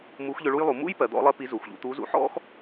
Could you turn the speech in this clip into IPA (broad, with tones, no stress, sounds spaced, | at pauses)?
m u˧˥ x ʎ ʏ˧ ɭ u˥ j lˠ u˩˧ m ṵ˥ j p ɜ˩˧ d̪ ɔ̰˧˥ lˠ ɜ˥ p i˧˥ z u˩ x ʎ ṵ˧ t̪ u˧˥ z ṵ˧˥ ħ ɔ̰˥ x